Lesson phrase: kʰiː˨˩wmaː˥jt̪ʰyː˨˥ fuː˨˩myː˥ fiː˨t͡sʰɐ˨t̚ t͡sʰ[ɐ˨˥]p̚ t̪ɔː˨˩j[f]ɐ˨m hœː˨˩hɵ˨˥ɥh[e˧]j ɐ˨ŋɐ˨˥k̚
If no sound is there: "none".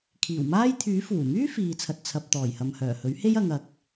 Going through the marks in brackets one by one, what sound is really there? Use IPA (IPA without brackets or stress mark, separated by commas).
ɐ˨, h, e˥